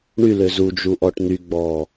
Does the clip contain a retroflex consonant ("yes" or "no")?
yes